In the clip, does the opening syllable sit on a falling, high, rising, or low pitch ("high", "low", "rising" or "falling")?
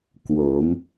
rising